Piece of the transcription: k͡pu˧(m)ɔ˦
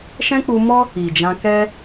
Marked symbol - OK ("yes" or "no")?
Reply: yes